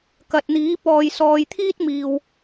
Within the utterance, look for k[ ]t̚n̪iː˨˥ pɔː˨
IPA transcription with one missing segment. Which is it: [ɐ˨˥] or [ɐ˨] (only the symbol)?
ɐ˨